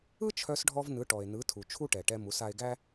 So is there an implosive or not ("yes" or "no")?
no